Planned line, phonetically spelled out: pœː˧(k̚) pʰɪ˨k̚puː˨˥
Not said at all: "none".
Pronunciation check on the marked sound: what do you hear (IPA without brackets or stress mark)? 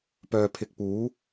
none